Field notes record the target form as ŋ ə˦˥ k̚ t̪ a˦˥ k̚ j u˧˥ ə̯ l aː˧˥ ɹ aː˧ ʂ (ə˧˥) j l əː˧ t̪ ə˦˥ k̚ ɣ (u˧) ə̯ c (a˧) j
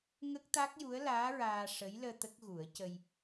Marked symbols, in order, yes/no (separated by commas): yes, no, no